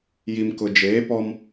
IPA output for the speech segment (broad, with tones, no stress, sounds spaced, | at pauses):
j i˨ m k ʊ˨ d͡ʒ eː˨˦ p ɔ˦ m